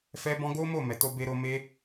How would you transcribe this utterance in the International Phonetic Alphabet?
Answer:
f ɛ˦ b ɔ̃˦ ɡ o˦ m o˦˨ m ɛ˨ t o˧ b e˧ ɾ o˧ m e˦

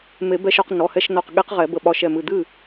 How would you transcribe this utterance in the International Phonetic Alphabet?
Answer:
m e˨˩˦ b ɛ˧ ʃ ɒ˧ q n ɔ˩˧˩ h ɛ˧ ʃ n ɔ˧˩ q ɠ e˧˥ q ʁ ɛ˨˩˦ b ə˧˩ ɓ ɒ˧˩ ʃ ɛ˧˩ m ɨ˧˩ d̪ ɨ˥˨

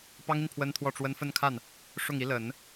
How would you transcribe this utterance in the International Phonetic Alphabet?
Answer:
p ɑ˥ ŋ i˨ n pʰ w ə˥ n t̪ʰ w ɔ˥˩ ʈ͡ʂ w ə˥ n f ə˥˧ n kʰ a˥˩ n | ʂ ʊ˥˩ ŋ i˧˥ l ə˨˩˦ n

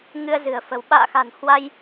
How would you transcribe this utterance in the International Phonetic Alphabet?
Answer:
ŋ ɨ˧ ə̯ z ɨ̤˨˩ ə̯ f ə̤˨˩ w ɓ a̰ː˧˨ x a̤˨˩ n h w a˧ j

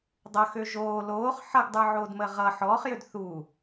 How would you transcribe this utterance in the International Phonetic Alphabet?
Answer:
dˤ ʌ x ø ʒ oː l oː χ ħ ʌ ɡ dˤ ə˞ ʕ oː d m əː ʁ ʌ ħ ɔː χ j ø d θ uː

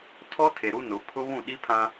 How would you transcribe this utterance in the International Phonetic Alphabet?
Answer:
tʰ ɔ˦ tʰ e˨ ɾ u˦ n ʊ˨˦ pʰ ʊ˦ β ũ˦˨ ɗ i˦ pʰ ã˦

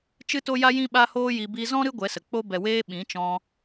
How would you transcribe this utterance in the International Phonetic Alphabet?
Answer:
t͡ʃ ɨ˦ t o˦ j a˦ j ĩ˦ ɓ a˦ h oː˦ j i˧ b i˧ z ɔ̃˦ ɾ ɨ˦ ɡʷ ɛ˨˦ s ə˨ k͡p o˦ b ɛ˨ w eː˧ ɓ ĩ˨˦ t͡ʃ ɔ̃˧

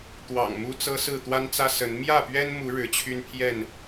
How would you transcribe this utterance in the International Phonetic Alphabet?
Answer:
t̪ w ɑ̰˨˩ ŋ m u˦ t͡s ɤ˦ s ɹ̩˥˨ t̪ w a˦ n t͡s ä˦ s ə˨˦ n m j ä˥˨ p ɥ ɛ˦ n m u˨˦ ɻ ɻ̩˨˦ t͡ɕʰ y˦ n pʰ j ɛ˥˨ n

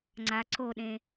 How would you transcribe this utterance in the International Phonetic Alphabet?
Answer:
ŋ͡ǀ a ǀ o ɗ ẽ

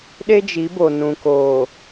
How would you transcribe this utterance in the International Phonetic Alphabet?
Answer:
ɗ e˦ d͡ʒ i˨˦ b o˨ n ũ˨ k oː˨

